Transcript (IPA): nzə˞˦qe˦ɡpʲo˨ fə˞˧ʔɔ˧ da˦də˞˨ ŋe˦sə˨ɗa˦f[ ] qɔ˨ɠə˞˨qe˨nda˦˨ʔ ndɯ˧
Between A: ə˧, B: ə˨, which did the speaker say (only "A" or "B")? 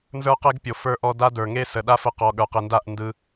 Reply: A